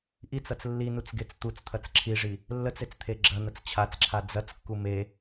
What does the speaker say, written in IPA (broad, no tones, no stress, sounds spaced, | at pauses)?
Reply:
ʔ i t͡s ɐ t͡s lː i n u t͡s ɡ e t͡s t̪ u t͡s t̪ʰ ɐ t͡s ǁʰ i ʐ i | lː ə t͡s e t͡s t̪ʰ e ɡ͡ǁ ɐ n̪ ə t͡s t͡ɕʰ a t͡s ǁʰ a d͡z ɐ t͡s kː u m e